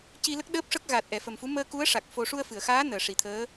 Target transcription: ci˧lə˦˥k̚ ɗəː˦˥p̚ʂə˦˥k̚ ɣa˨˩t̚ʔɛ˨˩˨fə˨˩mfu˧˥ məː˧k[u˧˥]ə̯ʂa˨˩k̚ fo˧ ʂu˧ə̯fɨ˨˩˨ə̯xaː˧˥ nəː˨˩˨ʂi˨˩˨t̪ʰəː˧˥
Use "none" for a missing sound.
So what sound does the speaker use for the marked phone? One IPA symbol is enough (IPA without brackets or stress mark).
u˧˥